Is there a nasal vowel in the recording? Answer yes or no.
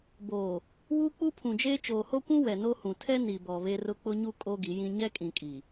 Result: yes